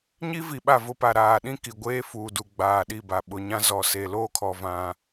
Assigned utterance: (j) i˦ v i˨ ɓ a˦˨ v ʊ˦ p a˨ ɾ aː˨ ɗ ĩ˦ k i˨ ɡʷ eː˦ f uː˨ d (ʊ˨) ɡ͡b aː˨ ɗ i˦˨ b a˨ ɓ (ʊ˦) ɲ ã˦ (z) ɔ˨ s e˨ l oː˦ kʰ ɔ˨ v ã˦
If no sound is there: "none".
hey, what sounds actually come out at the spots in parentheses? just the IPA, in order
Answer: ɲ, u˨, ʊ˨, z

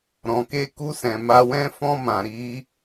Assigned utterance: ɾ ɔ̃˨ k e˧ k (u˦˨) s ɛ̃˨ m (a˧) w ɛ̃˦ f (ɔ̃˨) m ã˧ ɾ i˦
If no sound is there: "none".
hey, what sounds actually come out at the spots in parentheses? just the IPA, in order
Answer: u˧, a˧, ɔ̃˦

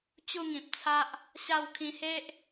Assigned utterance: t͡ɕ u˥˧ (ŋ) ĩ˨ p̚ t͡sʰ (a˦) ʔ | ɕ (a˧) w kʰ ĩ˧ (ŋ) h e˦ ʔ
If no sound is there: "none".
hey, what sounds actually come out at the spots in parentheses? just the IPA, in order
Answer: ŋ, a˦, a˥˧, none

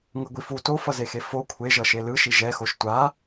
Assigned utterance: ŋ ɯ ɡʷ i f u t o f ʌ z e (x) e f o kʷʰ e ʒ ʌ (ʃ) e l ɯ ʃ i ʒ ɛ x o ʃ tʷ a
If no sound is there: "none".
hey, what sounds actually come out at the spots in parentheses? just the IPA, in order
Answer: x, ʃ

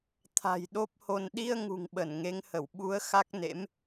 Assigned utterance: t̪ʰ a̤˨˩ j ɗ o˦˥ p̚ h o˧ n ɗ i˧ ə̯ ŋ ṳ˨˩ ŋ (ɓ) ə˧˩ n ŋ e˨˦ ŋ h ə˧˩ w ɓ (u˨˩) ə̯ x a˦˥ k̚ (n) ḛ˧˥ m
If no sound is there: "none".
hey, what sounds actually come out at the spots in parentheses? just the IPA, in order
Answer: ɓ, u˨˦, n

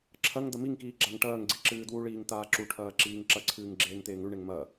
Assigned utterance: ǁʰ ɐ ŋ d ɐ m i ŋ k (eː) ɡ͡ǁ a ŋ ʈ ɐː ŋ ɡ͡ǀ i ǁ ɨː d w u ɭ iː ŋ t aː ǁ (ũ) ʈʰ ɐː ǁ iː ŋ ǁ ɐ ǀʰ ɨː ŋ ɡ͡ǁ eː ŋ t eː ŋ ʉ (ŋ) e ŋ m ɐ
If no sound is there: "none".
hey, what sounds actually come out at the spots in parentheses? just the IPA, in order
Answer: iː, u, ɳ

